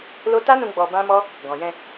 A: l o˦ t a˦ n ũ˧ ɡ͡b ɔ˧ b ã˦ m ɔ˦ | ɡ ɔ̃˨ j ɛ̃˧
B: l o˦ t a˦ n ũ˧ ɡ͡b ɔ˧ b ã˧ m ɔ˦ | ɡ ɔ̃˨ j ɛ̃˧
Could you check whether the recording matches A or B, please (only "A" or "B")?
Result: A